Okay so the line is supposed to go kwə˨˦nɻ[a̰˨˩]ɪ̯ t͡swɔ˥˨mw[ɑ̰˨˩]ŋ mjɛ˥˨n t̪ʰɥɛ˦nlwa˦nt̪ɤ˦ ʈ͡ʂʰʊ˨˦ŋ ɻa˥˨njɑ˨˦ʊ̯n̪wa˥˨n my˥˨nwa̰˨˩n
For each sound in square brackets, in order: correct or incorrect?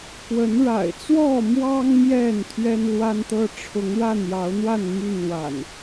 correct, incorrect: ɑ˦

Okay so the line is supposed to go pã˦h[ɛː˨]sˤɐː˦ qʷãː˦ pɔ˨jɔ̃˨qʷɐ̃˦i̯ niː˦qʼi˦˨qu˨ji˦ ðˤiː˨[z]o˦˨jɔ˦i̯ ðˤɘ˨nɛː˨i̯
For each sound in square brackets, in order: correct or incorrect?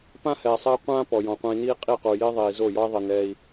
correct, correct

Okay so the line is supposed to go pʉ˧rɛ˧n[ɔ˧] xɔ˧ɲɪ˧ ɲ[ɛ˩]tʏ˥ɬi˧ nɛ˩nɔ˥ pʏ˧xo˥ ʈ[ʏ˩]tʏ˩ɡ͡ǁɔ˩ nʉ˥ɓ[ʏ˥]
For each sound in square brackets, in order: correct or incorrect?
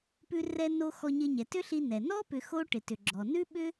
incorrect: o˧, correct, incorrect: ɪ˩, correct

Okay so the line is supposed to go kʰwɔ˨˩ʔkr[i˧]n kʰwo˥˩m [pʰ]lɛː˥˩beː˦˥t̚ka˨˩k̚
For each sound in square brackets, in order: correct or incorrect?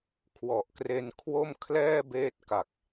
incorrect: e˧, incorrect: kʰ

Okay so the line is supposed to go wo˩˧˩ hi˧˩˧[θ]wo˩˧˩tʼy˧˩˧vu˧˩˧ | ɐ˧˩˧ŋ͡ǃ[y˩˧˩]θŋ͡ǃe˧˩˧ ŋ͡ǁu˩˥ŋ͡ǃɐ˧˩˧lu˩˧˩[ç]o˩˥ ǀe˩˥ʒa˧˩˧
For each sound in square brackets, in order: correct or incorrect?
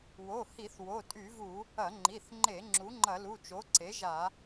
correct, incorrect: i˩˧˩, incorrect: t͡ʃ

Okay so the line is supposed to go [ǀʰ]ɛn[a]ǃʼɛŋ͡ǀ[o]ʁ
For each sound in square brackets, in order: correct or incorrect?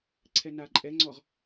correct, correct, incorrect: ɔ

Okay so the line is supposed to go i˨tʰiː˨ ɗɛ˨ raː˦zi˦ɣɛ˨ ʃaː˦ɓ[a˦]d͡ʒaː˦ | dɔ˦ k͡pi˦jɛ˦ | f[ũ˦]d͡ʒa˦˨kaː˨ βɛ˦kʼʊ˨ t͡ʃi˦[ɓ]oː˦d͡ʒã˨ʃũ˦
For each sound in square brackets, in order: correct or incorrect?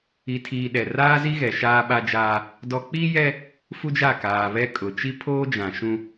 correct, incorrect: u˦, incorrect: pʰ

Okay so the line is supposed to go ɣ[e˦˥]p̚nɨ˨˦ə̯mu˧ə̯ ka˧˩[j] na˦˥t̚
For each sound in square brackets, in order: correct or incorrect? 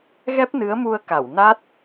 incorrect: ɛ˦˥, incorrect: w

